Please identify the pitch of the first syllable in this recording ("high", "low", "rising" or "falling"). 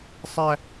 high